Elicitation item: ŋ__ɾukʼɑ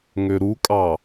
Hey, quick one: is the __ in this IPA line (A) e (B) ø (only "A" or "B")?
B